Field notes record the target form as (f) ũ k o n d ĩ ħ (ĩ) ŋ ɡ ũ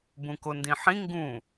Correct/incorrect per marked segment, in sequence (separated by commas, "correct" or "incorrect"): incorrect, correct